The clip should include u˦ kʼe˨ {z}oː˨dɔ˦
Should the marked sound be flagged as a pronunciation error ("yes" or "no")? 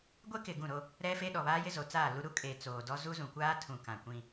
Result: yes